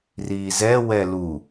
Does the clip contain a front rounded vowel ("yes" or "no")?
no